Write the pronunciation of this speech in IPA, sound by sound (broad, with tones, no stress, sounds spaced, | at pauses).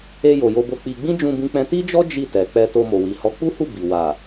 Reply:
e˧ j o˨ j o˧ b o˧ k͡p i˧ ɡ͡b ĩ˦ d͡ʒ ũ˧ b ĩ˧ k͡p ɛ̃˧ t i˦ d͡ʒ ɔ˦ d͡ʒ i˦˨ t ɛ˨ k͡p ɛ˧ t o˧ m o˨ w i˨ h ɔ˨˦ k͡p u˦ h u˦˨ b i˨ w a˨